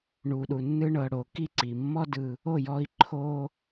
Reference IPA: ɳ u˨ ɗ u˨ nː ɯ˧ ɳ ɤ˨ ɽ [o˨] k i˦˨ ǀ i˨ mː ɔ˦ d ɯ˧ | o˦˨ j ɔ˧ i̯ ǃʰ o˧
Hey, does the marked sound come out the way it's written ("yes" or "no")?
yes